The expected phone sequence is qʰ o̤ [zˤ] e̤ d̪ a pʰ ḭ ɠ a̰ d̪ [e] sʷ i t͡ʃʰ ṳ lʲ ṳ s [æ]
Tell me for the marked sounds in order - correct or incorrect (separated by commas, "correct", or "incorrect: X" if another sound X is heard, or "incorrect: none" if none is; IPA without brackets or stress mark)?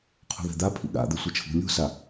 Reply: incorrect: ð, correct, incorrect: a